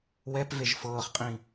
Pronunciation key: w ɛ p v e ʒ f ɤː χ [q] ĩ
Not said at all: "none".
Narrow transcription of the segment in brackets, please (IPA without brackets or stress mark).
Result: qʼ